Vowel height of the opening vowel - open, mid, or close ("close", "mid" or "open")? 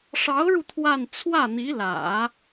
open